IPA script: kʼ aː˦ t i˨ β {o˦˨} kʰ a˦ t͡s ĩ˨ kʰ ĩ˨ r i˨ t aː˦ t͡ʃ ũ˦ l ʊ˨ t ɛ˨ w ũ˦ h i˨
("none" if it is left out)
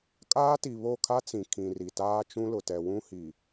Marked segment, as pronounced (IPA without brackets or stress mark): o˦˨